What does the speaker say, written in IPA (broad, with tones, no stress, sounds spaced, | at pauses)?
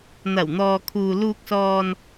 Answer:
n̪ ɐ˨˩ w n̪ ɔː˨ kʰ uː˨ l uː˨ k̚ s ɔː˨ n